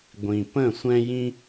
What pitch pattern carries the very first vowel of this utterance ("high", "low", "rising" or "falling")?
low